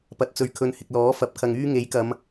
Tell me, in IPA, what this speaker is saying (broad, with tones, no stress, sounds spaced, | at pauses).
p ɐ˨˥ t̚ t͡s ɵ˨ ɥ kʰ ɵ˨˧ n h ɪ˨ k̚ l ɔː˨˥ f ɐ˨˥ p̚ kʰ ɐ˨ ŋ yː˥ ŋ e˨˥ j k ɐ˨˧ m